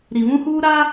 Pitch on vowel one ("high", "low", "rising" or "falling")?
low